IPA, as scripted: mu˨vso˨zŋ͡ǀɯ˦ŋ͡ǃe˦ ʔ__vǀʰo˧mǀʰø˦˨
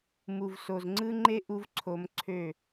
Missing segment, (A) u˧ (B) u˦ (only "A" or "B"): B